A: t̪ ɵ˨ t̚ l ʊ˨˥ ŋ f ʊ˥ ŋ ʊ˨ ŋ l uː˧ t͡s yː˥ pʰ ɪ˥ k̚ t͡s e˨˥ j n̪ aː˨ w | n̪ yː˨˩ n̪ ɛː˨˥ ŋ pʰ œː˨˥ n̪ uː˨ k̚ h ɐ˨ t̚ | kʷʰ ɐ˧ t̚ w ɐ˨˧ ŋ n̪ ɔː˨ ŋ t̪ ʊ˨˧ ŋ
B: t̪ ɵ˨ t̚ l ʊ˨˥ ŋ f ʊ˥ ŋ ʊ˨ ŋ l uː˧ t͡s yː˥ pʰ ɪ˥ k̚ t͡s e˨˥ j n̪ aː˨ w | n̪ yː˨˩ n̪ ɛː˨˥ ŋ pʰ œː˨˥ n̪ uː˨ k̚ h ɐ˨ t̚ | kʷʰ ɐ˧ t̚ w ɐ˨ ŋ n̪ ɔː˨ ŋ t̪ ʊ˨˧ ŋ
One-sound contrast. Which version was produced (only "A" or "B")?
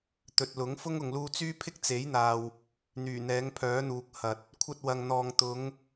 B